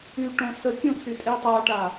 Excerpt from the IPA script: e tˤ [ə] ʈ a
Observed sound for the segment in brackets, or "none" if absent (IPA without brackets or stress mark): a